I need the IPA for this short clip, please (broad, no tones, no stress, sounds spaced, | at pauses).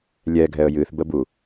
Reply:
lʲ ɛ ɡʱ ɛ ə̯ j ɨ θ b ə b u